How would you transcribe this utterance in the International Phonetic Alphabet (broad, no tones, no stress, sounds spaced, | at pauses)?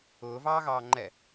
ʊː v ɑː ɣ ɑː ŋ͡ǃ ɛ